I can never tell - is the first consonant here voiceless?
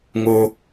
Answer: no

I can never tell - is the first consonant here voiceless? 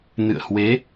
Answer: no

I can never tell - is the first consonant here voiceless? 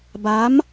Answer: no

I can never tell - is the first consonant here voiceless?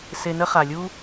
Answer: yes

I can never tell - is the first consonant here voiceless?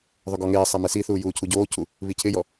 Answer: no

